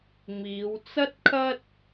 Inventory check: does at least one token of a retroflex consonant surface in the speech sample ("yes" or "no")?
no